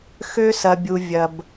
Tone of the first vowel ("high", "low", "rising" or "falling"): high